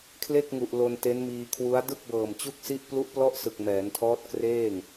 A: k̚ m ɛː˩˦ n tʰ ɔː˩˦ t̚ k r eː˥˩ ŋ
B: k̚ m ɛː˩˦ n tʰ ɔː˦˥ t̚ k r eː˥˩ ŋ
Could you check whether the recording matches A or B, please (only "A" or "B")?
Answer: B